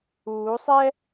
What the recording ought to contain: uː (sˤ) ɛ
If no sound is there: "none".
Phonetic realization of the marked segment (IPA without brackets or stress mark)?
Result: sˤ